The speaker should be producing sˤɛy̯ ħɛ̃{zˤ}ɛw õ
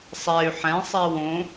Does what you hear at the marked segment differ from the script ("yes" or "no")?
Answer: yes